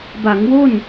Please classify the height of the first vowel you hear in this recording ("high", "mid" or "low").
low